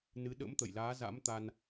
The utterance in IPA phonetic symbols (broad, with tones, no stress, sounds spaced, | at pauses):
n ɨ˨˦ ɗ ə̰˧˥ m t̪ ə̰˧˨ j l aː˨˦ z a̰˧˥ m t̪ a˧ n